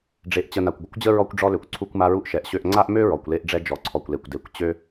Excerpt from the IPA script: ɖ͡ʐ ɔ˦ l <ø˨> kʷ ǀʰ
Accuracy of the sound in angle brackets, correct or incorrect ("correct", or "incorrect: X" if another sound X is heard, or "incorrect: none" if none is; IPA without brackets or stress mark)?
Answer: correct